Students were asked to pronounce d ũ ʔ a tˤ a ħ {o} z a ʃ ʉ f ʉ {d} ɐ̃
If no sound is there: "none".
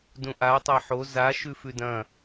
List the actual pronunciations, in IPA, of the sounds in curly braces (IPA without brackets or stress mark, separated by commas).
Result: o, d